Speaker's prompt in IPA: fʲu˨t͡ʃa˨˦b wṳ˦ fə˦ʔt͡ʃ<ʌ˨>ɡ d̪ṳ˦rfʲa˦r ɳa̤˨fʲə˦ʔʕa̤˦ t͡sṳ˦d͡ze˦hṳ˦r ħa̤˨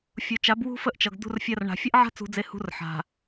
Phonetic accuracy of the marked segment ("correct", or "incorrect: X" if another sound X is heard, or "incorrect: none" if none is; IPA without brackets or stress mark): correct